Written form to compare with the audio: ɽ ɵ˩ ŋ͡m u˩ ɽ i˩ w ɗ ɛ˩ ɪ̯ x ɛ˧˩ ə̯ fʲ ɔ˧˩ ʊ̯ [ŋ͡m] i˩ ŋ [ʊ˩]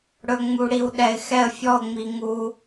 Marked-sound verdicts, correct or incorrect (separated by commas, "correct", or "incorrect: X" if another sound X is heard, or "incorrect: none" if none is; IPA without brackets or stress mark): correct, incorrect: u˩